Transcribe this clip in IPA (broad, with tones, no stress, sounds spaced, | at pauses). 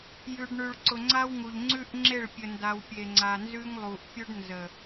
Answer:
j ʉ˨ ɖ ɳ ʉ˨ ɭ ǀ ʊ˨ ŋ͡ǀ a˦ w ŋ u˨ ʎ ŋ͡ǀ ʉ˦ ʔ ŋ͡ǁ e˦˨ ɭ pʲ ə˨ n d a˨ w pʲ e˨ ŋ͡ǀ a˨ n z ʉ˦ ŋ lˠ u˨ ʔ pʲ ʊ˦ ɖ n z ə˨